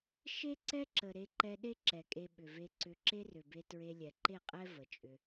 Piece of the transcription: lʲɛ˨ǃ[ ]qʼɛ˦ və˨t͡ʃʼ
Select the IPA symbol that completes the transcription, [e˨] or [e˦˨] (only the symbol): e˦˨